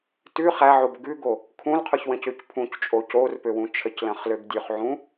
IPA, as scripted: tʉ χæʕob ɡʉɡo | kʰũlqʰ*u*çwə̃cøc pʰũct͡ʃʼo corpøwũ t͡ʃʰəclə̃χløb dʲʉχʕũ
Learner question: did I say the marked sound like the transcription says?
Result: no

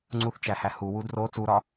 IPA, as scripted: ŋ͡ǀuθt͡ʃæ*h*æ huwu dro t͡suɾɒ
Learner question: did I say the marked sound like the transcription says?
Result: yes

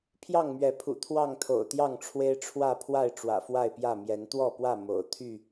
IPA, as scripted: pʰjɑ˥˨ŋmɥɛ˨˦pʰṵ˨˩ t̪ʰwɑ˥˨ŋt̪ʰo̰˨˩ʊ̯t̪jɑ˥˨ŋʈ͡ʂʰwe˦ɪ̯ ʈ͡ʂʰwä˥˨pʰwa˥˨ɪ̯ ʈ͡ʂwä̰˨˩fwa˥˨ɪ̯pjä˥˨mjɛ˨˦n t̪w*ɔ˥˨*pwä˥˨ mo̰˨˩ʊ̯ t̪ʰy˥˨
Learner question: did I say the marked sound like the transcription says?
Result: yes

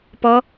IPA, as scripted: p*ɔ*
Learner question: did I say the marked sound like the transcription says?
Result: yes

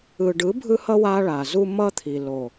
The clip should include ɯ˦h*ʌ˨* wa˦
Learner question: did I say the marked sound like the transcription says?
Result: no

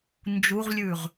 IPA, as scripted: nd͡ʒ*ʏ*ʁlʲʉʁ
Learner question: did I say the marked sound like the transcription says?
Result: no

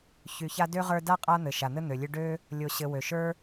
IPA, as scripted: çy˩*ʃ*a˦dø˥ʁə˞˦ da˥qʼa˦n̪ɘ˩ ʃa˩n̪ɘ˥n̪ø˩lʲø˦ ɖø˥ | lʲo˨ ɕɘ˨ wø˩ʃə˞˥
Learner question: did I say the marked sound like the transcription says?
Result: no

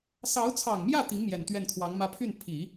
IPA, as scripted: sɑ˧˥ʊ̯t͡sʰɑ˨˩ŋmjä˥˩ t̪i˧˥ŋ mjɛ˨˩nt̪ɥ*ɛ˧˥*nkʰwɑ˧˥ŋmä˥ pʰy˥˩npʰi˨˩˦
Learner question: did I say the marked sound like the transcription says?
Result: no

